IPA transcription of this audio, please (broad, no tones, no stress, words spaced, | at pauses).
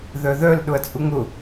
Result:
ðœðœl ɗʊɐ̯t͡sʼuŋʊ